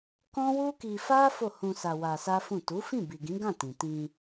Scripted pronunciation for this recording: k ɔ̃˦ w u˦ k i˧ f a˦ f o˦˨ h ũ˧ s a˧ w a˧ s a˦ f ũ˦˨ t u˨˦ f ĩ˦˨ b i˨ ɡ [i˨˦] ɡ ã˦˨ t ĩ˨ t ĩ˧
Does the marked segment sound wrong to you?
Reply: yes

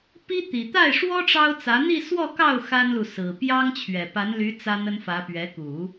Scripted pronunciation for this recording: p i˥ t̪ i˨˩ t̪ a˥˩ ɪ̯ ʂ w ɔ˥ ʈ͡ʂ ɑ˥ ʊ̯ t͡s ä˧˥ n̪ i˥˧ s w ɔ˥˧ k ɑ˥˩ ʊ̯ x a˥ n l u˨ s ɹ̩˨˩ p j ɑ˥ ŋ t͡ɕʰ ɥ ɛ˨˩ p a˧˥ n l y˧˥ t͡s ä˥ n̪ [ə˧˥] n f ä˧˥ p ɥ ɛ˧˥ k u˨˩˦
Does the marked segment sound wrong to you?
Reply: yes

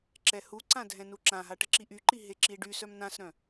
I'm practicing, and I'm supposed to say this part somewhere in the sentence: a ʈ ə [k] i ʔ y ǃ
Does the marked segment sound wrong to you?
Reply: yes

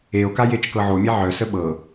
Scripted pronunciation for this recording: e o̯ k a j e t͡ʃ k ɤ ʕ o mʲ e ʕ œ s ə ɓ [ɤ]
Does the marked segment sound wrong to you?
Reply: no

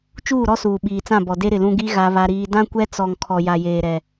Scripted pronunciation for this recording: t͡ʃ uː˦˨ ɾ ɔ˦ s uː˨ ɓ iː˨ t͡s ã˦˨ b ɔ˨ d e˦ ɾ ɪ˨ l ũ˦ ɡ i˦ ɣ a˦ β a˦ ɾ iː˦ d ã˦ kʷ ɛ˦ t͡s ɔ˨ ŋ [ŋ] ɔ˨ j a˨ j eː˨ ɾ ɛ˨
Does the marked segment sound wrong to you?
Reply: yes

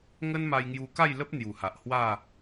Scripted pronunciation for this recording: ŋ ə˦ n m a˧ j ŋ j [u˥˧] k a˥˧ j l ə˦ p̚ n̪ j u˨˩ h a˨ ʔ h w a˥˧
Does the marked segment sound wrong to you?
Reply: yes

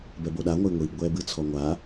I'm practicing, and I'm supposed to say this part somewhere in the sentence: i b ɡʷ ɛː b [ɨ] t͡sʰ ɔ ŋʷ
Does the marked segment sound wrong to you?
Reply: no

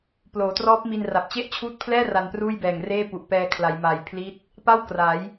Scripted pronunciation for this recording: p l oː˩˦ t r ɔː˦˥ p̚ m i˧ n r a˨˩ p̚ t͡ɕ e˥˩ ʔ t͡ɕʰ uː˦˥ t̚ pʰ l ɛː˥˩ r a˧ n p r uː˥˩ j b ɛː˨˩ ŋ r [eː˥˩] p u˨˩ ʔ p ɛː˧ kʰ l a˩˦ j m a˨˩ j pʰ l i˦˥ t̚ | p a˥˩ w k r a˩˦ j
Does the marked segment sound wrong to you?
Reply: no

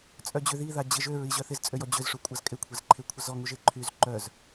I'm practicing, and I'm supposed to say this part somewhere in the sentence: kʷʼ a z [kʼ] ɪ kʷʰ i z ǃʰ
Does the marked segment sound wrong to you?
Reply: no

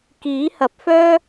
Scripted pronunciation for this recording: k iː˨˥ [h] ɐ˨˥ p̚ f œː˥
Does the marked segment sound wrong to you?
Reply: no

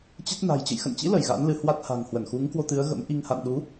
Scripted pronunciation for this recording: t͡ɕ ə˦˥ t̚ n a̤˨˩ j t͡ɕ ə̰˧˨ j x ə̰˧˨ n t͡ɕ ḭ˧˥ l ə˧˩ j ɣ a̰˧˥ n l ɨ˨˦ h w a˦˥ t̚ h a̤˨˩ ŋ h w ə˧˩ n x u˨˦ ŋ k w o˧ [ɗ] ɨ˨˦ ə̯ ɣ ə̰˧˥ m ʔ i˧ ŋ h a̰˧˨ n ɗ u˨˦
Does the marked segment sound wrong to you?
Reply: yes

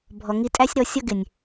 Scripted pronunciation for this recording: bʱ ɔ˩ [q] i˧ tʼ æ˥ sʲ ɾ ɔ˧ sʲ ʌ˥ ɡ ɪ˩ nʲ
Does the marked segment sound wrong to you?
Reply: yes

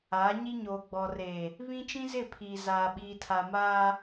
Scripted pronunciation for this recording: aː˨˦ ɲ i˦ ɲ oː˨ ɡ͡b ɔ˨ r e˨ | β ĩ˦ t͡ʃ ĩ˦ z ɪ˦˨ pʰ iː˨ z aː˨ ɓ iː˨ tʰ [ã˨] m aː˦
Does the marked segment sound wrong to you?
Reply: yes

